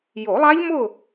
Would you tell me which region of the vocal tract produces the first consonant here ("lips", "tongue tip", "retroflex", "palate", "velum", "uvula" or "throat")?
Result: palate